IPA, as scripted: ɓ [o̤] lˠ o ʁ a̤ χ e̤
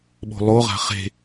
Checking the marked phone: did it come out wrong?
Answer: no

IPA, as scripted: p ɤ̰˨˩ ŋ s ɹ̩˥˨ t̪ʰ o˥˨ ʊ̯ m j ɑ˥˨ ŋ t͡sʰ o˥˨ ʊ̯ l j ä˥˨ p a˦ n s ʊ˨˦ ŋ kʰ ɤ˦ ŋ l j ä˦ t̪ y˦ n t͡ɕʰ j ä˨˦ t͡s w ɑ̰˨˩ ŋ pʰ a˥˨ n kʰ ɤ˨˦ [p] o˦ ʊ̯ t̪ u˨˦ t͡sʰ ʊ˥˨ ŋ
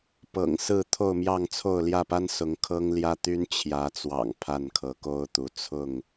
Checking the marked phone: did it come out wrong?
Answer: yes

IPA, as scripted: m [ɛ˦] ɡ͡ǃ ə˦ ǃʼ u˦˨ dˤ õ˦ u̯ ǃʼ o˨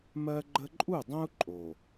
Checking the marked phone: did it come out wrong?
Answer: yes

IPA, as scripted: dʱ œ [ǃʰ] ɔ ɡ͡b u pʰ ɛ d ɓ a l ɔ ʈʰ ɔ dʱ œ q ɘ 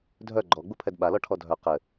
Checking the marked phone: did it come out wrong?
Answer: yes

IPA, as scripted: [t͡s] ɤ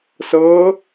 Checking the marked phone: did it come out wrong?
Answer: yes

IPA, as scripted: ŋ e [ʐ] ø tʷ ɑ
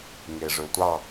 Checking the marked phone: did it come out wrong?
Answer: no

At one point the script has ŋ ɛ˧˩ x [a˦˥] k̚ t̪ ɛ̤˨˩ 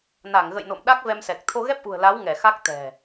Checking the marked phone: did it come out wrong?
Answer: no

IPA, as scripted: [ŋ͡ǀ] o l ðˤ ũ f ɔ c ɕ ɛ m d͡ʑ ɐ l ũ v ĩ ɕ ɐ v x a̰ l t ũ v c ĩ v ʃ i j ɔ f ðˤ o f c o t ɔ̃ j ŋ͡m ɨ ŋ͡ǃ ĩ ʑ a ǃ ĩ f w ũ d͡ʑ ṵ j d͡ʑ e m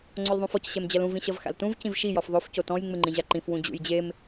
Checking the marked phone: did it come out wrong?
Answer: no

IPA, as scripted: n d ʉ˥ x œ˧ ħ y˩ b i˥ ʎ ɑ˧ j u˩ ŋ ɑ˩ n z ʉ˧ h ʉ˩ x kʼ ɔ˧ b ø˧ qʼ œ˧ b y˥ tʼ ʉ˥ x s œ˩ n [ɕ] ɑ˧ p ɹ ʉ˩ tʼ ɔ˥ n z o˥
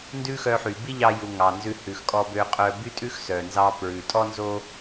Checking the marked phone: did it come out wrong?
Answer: yes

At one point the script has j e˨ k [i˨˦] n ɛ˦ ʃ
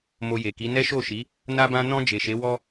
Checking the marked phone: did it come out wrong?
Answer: no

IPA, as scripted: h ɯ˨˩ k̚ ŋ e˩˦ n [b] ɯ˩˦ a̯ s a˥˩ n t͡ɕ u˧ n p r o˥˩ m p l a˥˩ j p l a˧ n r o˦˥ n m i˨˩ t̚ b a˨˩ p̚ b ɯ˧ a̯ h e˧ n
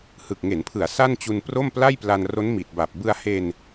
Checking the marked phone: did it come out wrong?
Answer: yes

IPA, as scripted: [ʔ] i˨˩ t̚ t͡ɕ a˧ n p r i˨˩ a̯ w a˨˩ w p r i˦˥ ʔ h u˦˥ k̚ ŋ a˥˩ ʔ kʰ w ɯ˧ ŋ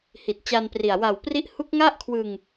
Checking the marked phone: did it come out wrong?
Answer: yes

